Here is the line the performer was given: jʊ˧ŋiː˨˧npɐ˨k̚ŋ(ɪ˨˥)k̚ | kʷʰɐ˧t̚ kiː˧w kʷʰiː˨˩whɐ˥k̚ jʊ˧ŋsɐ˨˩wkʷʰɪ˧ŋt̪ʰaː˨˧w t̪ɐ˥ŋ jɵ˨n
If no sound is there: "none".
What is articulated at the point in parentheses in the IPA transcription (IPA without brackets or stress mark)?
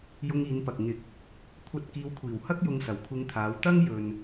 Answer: ɪ˨˥